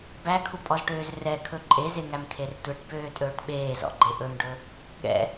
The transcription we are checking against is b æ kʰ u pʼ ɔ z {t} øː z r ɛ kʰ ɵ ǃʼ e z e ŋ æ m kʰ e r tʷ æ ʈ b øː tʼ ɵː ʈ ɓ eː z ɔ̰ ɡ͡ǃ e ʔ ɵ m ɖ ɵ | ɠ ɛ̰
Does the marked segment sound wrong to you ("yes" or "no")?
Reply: yes